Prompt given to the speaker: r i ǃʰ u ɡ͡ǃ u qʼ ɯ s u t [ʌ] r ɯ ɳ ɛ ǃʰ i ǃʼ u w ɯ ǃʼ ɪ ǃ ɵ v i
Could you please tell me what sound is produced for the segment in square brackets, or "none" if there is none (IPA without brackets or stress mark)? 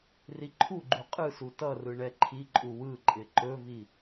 ʌ